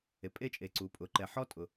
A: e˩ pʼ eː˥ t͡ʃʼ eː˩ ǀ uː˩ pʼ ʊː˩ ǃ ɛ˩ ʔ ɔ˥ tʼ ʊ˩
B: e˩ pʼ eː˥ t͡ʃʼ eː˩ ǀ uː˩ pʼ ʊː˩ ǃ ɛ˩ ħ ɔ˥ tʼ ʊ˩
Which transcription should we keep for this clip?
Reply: B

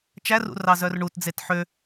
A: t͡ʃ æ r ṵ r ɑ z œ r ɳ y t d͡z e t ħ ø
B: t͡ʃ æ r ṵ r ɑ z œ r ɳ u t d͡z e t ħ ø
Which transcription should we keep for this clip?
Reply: B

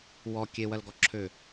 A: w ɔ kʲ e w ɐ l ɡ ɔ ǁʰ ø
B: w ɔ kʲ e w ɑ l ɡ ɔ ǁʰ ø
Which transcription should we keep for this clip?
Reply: A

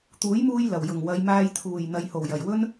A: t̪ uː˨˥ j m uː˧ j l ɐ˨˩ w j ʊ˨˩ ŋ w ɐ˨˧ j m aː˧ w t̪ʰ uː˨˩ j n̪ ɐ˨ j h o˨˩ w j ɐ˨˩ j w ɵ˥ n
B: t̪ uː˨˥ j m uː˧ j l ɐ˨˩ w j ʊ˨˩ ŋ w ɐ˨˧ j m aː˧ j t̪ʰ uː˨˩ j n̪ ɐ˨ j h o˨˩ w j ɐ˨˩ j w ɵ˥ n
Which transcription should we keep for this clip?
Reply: B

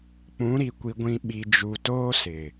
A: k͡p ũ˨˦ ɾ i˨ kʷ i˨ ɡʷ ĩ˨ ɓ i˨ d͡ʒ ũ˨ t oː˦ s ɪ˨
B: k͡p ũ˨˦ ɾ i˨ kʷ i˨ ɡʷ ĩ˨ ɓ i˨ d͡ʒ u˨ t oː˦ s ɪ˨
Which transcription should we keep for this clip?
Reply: B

